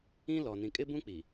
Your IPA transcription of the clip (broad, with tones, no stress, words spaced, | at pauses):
ĩ˦lɔ˨ nĩ˨kʼɪ˦bũ˦k͡pi˨